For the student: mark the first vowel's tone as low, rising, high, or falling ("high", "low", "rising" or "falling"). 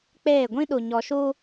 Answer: falling